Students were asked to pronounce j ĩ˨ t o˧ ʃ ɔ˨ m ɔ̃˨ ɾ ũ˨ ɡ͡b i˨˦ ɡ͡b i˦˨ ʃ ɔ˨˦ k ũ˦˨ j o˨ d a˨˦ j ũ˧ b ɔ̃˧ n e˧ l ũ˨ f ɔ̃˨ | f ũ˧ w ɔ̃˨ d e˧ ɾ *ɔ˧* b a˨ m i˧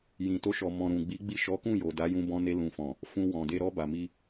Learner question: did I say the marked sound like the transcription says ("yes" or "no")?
yes